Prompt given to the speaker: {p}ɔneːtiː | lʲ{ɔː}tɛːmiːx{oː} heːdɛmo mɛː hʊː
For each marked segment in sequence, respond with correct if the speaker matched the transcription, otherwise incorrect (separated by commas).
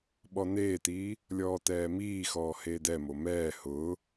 incorrect, correct, incorrect